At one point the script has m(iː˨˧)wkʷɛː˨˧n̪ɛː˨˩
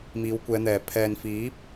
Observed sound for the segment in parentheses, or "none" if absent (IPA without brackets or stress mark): iː˨˧